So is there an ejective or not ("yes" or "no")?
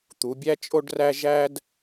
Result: yes